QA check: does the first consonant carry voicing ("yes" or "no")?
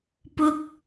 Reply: no